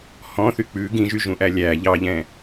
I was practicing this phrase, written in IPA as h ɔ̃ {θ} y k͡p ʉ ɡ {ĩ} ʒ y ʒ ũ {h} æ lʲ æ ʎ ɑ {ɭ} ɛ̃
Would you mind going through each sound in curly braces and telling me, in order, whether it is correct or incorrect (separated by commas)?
correct, correct, incorrect, incorrect